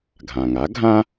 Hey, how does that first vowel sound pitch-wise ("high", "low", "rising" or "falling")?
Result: low